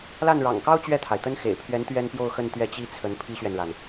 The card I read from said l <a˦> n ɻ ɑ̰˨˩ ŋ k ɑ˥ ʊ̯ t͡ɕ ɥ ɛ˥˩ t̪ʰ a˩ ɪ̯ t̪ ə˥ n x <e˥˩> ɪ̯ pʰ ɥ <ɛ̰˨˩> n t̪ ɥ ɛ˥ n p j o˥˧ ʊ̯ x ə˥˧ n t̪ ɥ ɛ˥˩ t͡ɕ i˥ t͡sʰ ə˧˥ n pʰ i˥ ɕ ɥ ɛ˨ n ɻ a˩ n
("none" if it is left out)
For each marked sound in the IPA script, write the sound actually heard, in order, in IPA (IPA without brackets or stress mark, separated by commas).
a˥˩, ḛ˨˩, ɛ˧˥